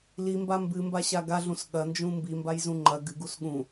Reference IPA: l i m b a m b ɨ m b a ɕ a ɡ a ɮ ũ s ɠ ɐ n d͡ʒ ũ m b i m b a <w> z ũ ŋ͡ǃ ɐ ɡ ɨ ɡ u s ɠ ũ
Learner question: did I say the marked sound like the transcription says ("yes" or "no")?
no